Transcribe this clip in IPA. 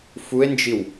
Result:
f u e̯ n d͡ʒ i w

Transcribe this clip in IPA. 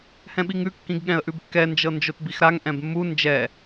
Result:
h ɛ̃ ɓ i ŋ ʉ kː ĩ ɡ ɠ ɛ̃ ə̯ ʔ ʉ b kː ɛ n d͡ʒ ɤ n d͡ʒ o t b i x ɾ a ŋ ʔ ɛ̃ b mː u n d͡ʒ ɛ

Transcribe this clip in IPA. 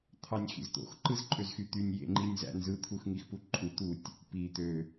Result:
t̪ʰ ɑ nʲ x ḭ z t̪ o̰ x ǃ ɯ z ǃʼ ø z x y t̪ y nʲ j ḛ ŋ͡ǃ i nʲ z æ̰ n z ɯ t̪ʰ u x ŋ i x p u ǃʼ u t̪ u tʲ | p i t̪ ø

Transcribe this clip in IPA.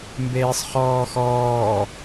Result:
m b eː sˤ χ ɔː x ɔː

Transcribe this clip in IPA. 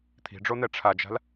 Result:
t̪ʰ i̤ ɖ͡ʐ o n̪ ɛ ʈ͡ʂʰ a d͡ʒ a̤ l

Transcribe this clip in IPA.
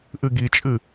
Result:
ʔ ɨ ɡ i t͡ʃʼ ɨ

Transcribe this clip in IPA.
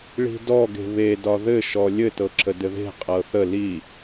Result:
ɭ i̤ d ɔ ɡ e̤ β e d ɒ ð ɘ ʃ ɔ lʲ ɘ t ɤ ǁ ə d ɘ ð e̤ qʼ ɤ θ ə l i

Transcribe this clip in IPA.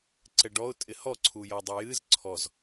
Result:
ǀ ɛ ɖ ɔ ʊ̯ tʼ ɪ h ɔ ǀʰ u j ɔ dˤ ɛ j ɨ z ǀʰ ɔ z

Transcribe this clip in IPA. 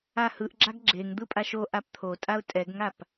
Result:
a h ɯ ʔ ɡ͡ǁ a ɡ ɡ͡ǁ e ŋ d̪ ɯ pʼ a ʃ o ʔ a p t̪ʰ o tʼ a ʊ̯ tʼ ɛ ɡ ŋ a p

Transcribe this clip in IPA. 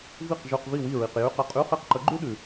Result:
v i˥˨ q ʒ ʉ˧˥˧ q v i˥˨ w i˥˨ ɹ i˨ q j ʉ˧˥˧ q ə˧˥˧ qʼ ʉ˧˥˧ χ i˥˨ q ǃ ə˧˥ ɡ͡ǃ ʉ˥ ɗ ʉ˨

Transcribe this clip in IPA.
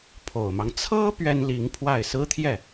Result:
pʰ o˨˩ ʊ̯ m ɑ˦ ŋ t͡sʰ ɤ˥ p ɥ ɛ˥ n l i˧˥ ŋ pʰ w a˥˩ ɪ̯ s ɹ̩˥ t̪ʰ j ɛ˥˩

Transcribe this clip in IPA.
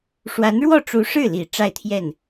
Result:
ʂ w a˧˥ n ɻ w ɔ˥˩ ʈ͡ʂ u˧˥ ʂ ɻ̩˥˩ l i˨˩ ʈ͡ʂ a˥˧ ɪ̯ t̪ʰ j ɛ˥˩ n

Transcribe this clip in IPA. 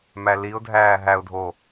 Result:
m æ l i ʊ̯ dʱ æː ɦ æ ʊ̯ dʱ o

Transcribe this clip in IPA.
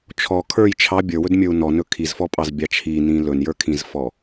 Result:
t͡ʃʰ ɔ kʰ ə˞ j t͡ʃʰ ɑ bʲ ə˞ w ɵ d mʲ ə˞ u̯ n ɔ n ɵ kʰ i z f ɔ pʼ ɑ z bʲ ɑ t͡ʃʰ i n ĩ l ɵ n j ə˞ kʰ ĩ z f ɔ

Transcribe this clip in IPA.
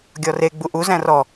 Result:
ɡʲ ɔ r e ɡ͡b u ʔ u z æ̃ r ɔ

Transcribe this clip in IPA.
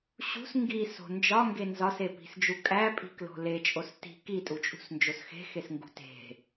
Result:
ɕ ṳ s ŋ ɡ i s o̤ n d͡ʒ ɒ ŋ ɡ e n z ɒ s e p i̤ s d͡ʒ u kʼ æ pʼ i̤ k l o̤ l e t͡ʃʼ o s t i̤ k i tʼ u t͡ʃʼ ṳ s n d͡ʒ o s x e̤ x e s ŋ ɡ ṳ t e̤

